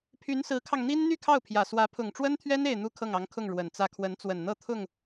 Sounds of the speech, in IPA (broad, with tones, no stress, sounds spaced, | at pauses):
pʰ y˧˥ n s ɹ̩˧˥ kʰ ɑ˧ ŋ n̪ i˥ n n̪ y˥˧ kʰ ɑ˥˩ ʊ̯ pʰ j ä˨˩ s w ä˧˥ pʰ ʊ˨˩ ŋ ʈ͡ʂ w ə˥ n t̪ʰ ɥ ɛ˥ n e˥˧ ɪ̯ n̪ u˥˧ kʰ ɤ˥˩ ŋ ɑ˧˥ ŋ kʰ ʊ˥˩ ŋ ɻ w ə˨˩ n t͡s ä˥˩ kʰ w ə˧˥ n t͡s w ə˨˩ n n̪ ɤ˥˧ t̪ʰ ʊ˥˩ ŋ